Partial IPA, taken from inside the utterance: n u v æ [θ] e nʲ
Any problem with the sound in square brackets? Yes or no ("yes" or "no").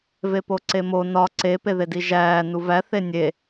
no